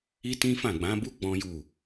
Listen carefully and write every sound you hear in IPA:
i˦tĩ˦fã˦˨ ɡ͡bã˨˦bu˦ ɡ͡bɔ̃˦ju˦˨

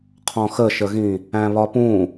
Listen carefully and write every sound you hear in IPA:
qʰɔ̃xəʃəɣĩ | æ̃βɒpũ

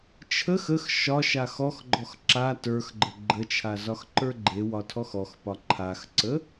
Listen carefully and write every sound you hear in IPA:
t͡ʃʰəx əx ʃɒʃa xɔxɡ͡ǃɔx ǁa tə˞xɡ͡ǃə ɡ͡ǃət͡ʃʰa zɒxǃə˞ɡ͡ǃewɒ tʰɔxɔxpɒ ǃʰaxǀə

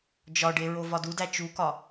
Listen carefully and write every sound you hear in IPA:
d͡ʒɒɖe ɹovɒdudæ t͡ʃukɒ

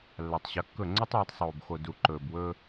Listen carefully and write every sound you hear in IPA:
lːa˨tˤ ɕɐ˨˦kːɵ˦˨ ŋ͡ǀɵ˦tˤwɐ˨˦tˤ sˤoː˨b xo˨ du˨ ǃɵː˨bwɵː˦

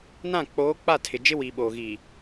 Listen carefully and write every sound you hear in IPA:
nã˦˨k͡poː˨˦ k͡pa˦˨tʰɪ˨ d͡ʒɪ˦wi˨ɓoː˨ɣiː˨

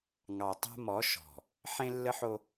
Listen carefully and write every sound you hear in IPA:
ŋɑ˨ tˤa̤˦mɔ˨˦ ʃɔ̤˨ | ħẽ˦lːə˦ħo˦

